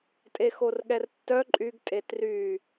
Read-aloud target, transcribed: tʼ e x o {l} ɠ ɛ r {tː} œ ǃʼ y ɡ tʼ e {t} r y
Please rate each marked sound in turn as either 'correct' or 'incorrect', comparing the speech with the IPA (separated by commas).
incorrect, correct, correct